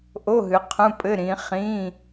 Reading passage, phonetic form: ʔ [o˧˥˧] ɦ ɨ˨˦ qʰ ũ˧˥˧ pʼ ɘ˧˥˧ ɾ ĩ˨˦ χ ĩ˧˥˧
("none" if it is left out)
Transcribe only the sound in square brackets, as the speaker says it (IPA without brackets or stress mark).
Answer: o˧˥˧